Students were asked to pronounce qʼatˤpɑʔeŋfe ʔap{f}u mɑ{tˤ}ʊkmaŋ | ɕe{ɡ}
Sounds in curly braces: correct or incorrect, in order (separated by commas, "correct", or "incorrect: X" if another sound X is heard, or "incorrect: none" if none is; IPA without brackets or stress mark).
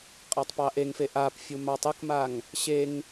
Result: incorrect: fʲ, correct, incorrect: ŋ